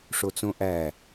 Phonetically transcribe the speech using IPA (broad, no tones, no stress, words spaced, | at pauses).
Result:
ʂot͡sõʔæ